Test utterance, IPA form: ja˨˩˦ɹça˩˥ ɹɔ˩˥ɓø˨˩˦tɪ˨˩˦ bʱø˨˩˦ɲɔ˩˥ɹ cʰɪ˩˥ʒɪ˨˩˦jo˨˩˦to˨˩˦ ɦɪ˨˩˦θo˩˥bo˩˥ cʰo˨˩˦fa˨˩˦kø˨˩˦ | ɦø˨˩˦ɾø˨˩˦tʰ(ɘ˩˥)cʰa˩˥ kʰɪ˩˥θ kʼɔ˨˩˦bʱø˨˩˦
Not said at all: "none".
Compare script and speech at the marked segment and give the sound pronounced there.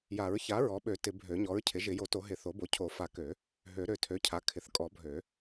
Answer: ø˩˥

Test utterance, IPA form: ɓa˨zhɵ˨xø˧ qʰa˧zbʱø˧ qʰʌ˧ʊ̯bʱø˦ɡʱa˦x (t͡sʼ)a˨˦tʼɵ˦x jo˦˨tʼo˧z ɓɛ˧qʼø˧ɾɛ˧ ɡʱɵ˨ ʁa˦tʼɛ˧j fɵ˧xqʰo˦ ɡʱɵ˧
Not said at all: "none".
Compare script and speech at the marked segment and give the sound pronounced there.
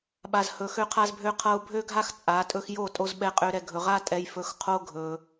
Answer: t͡sʼ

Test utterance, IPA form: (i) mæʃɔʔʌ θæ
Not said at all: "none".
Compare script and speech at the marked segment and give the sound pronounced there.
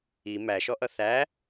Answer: i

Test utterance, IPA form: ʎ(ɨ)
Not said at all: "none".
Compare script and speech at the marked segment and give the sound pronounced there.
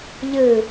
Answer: ɨ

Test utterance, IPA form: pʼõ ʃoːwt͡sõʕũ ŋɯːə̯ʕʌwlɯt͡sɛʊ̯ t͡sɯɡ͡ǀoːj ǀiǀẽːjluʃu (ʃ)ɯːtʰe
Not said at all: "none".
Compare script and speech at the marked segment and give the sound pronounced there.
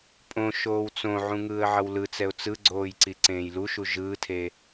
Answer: ʒ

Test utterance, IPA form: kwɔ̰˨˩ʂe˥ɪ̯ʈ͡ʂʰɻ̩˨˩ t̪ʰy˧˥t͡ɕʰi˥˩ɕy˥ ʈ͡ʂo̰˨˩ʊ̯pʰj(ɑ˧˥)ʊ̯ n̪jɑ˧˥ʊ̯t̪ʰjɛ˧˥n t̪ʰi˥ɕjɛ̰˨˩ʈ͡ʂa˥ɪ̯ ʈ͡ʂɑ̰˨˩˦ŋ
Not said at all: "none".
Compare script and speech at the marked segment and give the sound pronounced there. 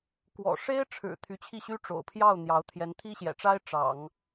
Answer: ɑ˥˩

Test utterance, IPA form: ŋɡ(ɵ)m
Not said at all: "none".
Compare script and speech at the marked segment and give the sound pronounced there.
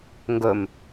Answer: ɵ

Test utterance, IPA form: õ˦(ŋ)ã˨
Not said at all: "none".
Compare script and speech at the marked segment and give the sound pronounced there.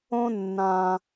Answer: nː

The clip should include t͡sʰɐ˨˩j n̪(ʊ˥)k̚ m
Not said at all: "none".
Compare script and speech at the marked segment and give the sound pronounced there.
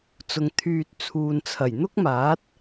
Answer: ʊ˥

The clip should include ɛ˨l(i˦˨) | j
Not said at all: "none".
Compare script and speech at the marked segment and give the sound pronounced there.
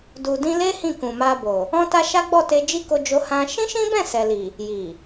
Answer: i˨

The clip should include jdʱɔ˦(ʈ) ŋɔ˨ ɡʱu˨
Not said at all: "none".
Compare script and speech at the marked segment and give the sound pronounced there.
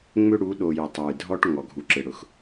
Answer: ʈ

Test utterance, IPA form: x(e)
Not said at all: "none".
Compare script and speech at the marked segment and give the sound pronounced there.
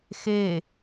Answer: e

